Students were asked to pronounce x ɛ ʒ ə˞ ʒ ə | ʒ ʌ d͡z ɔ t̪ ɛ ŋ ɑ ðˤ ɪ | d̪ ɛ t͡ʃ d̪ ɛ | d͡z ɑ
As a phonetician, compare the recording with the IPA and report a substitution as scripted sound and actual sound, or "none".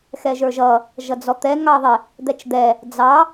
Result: ə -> ʌ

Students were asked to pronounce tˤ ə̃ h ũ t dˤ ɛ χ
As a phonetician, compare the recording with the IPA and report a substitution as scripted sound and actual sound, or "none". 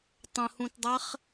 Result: none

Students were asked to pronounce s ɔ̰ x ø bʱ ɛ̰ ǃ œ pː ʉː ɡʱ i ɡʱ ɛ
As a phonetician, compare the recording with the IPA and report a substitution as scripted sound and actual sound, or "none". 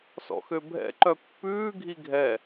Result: none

